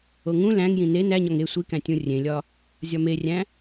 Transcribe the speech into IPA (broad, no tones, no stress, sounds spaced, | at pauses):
o ŋ ũ l æ̃ ŋ j ĩ n e n æ ɲ ɒ ŋ e sʷ i k æ̃ tʲ ũ rʲ ẽ lʲ ɒ | zʲ ɒ m e rʲ æ̃